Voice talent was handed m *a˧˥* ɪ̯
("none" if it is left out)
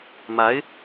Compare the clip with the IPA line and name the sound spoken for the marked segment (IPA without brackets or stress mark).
a˧˥